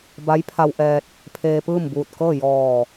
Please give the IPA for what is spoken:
b a˧˥ j pʰ a˧ w ʔ ɛː˧ t̚ | pʰ eː˧ p ɯː˥˨ m b uː˧˩ t̚ k ɤː˥˨ j ɔː˧˩

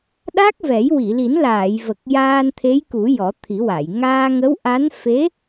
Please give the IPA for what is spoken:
ɗ a˦˥ k̚ v ɛ˨˩˦ j w i˨˩˨ l i˨˩˦ n l aː˨˩˨ j v ə˨˩ k̚ j aː˧ n t̪ʰ e˧˥ j k u˨˩˦ j ɔ˨˩˦ t̪ʰ i˨˩˦ w a˨˩˨ j ŋ aː˧ ŋ ə˧˥ w ʔ a˧˥ n f e˧˥

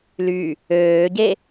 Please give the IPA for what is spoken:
l y | øː ɟ e

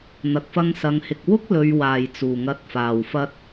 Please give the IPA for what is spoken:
n̪ ɐ˨ k̚ f ɐ˧ ŋ s ɐ˨˧ ŋ h ɪ˨ k̚ w ʊ˥ k̚ l ɵ˨ ɥ w aː˨˩ j t͡s uː˨˩ ŋ ɐ˨˥ t̚ f aː˨˩ w f ɐ˧ t̚

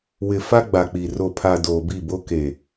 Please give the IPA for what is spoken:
w ɪ˨ f a˦ ɡ͡b a˨ k͡p i˨ r o˨ pʰ a˨ d oː˨ b i˦˨ b o˦ k e˨

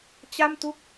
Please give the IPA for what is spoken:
t͡ɕ a˥˩ m t u˥˩ k̚

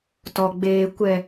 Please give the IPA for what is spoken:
t ɔ˨ ɡ͡b eː˨ kʷ ɛ˨

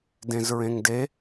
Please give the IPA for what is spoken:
d ẽ z ɹ ẽ ŋ d e

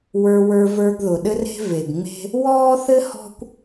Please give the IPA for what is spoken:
w ə˞˧ w ə˞˧ v ə˞˧ ɡ ð ʊ˨ ɗ ɘ˦ r e̤˦ v e˨ ɡ ŋ͡m e̤˦ | w ɔː˦ θ ɘ˦ h ɔ̤˦ kʷ

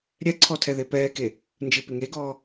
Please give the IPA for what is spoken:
ɾʲ ɛ ǀʰ ɔ tʰ ɛ ð e p ɛː k e | n d͡ʒ ɨ p e ŋ e ɡ ɔː

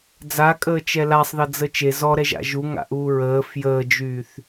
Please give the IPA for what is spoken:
d͡z a kʼ əː t͡ʃ ɛ l a sˤ ð ʌ d͡z ə t͡ʃ e z ɔ ɾ ɛ ʒ a̰ ʒ u ŋ a̰ ʔ uː ɹ əː f j əː d͡ʒ yː θ

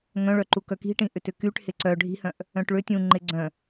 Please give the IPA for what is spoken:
ŋ œ̃ ɭ œ ǃ u k œ k i̤ ʈ ĩ ʔ ʏ t ʏ k y ʈ h ɪ ǀ œ ɖʱ i̤ h œ̃ ʔ | œ̃ ʈ ɭ ʏ tʲ ũ ŋ͡ǃ ɪ ɡ͡ǀ œ̃

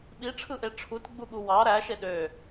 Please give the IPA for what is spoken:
ɓ i ʈ͡ʂʰ ɯ ʔ e ʈ͡ʂʰ u t ɡ͡b u ɠ u w ɑ ɾ æ ʃ e ɗ ø

